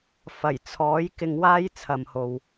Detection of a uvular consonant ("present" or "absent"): absent